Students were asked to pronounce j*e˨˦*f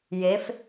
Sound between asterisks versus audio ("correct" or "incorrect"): correct